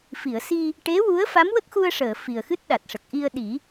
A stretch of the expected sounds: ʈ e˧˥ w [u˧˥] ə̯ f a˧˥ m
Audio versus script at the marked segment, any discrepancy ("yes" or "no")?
no